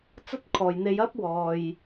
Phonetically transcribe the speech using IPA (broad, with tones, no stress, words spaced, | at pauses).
t͡sɐ˥t̚kʰɔː˨jn̪e˧j ɐ˥p̚ wɔː˨j